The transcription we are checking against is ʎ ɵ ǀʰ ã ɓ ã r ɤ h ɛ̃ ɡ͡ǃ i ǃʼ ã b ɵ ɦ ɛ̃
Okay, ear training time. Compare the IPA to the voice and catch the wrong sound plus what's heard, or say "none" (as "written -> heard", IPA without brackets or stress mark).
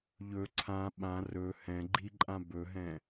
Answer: ɤ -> ɵ